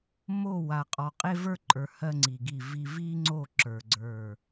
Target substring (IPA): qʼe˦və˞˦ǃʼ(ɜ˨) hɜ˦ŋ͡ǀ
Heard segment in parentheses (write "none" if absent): ə˞˨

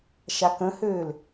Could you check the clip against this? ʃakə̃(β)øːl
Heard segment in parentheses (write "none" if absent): h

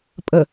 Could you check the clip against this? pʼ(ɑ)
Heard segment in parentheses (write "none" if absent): ə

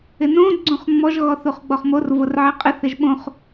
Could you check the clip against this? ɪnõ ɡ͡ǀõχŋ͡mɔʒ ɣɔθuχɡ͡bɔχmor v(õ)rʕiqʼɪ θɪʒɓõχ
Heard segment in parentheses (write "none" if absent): o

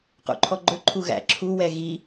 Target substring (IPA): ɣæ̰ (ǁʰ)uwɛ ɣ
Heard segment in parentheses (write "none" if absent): ǁʰ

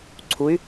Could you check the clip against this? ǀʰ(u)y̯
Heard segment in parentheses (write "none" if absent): u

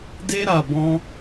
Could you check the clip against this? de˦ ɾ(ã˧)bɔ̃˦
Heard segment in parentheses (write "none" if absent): a˧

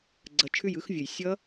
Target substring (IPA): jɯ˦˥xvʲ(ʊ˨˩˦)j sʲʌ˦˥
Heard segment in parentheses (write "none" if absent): ʊ˨˩˦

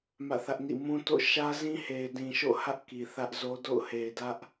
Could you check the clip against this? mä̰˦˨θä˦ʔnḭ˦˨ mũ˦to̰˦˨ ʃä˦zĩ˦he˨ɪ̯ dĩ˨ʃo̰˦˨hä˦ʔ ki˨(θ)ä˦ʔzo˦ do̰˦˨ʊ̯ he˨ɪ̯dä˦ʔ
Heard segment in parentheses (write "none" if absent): θ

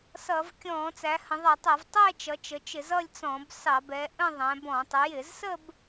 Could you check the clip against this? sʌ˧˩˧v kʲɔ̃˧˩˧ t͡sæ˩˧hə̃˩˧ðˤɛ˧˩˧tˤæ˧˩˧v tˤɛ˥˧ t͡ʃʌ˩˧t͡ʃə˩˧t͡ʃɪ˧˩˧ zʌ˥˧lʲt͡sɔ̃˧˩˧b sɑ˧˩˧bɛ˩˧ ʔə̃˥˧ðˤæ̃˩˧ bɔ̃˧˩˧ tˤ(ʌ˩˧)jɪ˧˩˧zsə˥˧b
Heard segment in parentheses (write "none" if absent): ə˩˧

